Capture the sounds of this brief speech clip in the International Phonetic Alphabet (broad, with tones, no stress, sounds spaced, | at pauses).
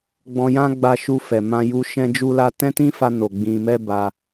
ɡ͡b ɔ̃˧ j ã˦ ɡ͡b a˧ ʃ u˧ f ɛ˨ m ã˧ j u˧ ʃ ɛ̃˦ d͡ʒ u˦ l a˦ t ɛ̃˦ t ĩ˦ f a˧ n o˨ ɡ͡b ĩ˧ m ɛ˦ b a˧